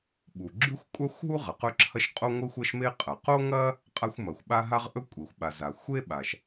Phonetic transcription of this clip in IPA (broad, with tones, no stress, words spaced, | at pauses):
ɓu˩ɡ͡ǁʉ˥xʷkʷʼa˥xʷɦu˥ ʁɐ˩qɵ˥ǁʰɐ˥ʃ qʼo˥ŋʷɨ˥xʷɐ˥ʃme˥ qʼɐ˩qo˥ŋɐ˥ | qʼa˥xʷmɐ˩xʷɓa˥ ɦa˥ʁʔɵ˥ kʷʼe˩xʷɓa˩za˩ xʷe˥ɓa˩ʃ